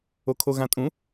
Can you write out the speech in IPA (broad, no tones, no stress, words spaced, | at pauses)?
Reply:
okʰoɣãtʼũ